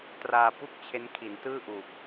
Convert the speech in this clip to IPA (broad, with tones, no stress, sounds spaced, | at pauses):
t r aː˧ p u˥˩ k̚ t͡ɕʰ e˦˥ n kʰ i˩˦ n t ɯː˥˩ ʔ uː˨˩ k̚